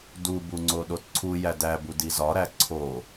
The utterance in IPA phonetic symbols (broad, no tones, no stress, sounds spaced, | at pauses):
d u b u ŋ͡ǀ o ɗ o t ǀʰ u j æ d æ b u d i z ɒ ɾ æ ǀʰ o